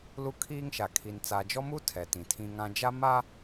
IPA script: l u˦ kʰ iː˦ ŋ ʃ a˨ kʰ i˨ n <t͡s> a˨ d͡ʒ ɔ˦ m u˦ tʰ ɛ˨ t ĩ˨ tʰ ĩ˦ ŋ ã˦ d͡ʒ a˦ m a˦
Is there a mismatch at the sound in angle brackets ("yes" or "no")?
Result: no